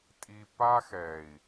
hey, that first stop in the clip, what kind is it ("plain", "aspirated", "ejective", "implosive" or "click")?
ejective